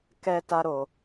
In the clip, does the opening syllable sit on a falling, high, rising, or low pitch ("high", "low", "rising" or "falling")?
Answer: high